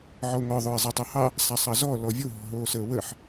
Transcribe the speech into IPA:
ʕ ɔ ʊ̯ ŋ ɔ ðˤ ʊː ɪ̯ zˤ ɑ tˤ ʊː h ɑ | sˤ a sˤ ɑ z ɔː l ɔ vʲ o ɦ ɔ̤ ɦ oː s əː w ə ħ

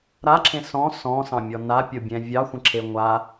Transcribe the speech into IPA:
ɾ a ǁʰ ẽ s ɔ̃ s ɔ̃ s ɑ̃ mʲ ɔ n a pʲ o bʲ ɛ̃ vʲ ɑ xʷ ə̃ ǁʰ e ŋʷ a

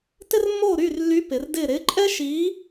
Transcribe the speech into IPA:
t ɪ˥ r mː oː˥˩ ɾ yː˥˩ r lː y˨˥ p ɪ˩˧ r d ɪː˥˩ ɾ ɪː˨˥ ǃʼ ɛ˥ ʃ iː˨˥

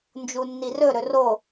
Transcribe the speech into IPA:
n d͡ʒ u nː i r ɵ ɾ ɵ r o

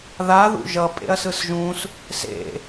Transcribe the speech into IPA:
ð a ð ṵ ʒ ʌ pʼ ḛ ɐ̯ s ɯ s ʒ ũ s | s ḛ

